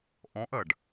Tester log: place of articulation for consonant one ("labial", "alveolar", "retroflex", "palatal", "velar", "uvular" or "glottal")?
glottal